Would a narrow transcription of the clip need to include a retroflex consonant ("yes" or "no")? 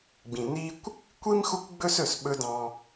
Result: no